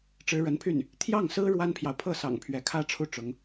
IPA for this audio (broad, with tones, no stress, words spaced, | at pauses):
ʈ͡ʂɻ̩˧˥ɻə˧˥npʰy˥˩n | t̪ʰjɑ˥˩ŋsɹ̩˥ ɻwa˥npʰjɑ˨ʊ̯ pʰɤ˥˩sɑ̰˨˩ŋ pʰɥɛ˧˥kʰä˥ʈ͡ʂʰu˥˩ ʈ͡ʂʊ˧˥ŋ